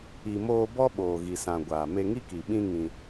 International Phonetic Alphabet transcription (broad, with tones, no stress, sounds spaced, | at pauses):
i˨ m oː˧ b ɔ˦ ɓ oː˨ ɣ i˨ s ã˨ ɡʷ aː˨ m e˧ ŋ i˦ k i˨ ɓ ĩ˦ ŋ ĩ˧